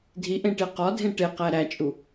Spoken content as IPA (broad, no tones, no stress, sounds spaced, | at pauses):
dʱ i ʔ ẽ ʈ e q ɒ dʱ ẽ ʈ e q æ ɾ æ t͡ʃʼ u